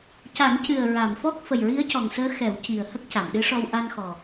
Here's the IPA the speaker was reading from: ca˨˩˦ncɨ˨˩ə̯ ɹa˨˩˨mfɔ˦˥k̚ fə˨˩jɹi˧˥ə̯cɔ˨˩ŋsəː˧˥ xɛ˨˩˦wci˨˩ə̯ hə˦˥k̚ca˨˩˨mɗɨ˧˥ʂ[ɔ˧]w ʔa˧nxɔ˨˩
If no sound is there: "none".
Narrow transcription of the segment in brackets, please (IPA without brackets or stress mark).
ɔ˧